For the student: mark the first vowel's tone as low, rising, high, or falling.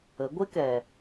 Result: rising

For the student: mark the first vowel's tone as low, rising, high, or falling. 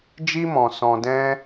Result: high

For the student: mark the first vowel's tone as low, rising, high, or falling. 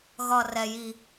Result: high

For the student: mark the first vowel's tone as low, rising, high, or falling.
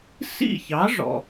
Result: falling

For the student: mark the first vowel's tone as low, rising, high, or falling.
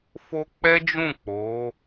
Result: high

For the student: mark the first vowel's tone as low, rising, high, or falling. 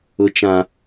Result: high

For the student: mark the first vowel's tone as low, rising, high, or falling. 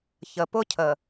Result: low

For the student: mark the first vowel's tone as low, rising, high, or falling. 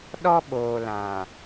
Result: high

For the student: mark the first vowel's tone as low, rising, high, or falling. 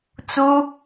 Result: high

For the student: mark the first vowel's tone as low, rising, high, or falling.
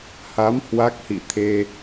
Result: rising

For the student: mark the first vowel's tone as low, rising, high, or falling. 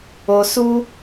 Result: low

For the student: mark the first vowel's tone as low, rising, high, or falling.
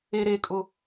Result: low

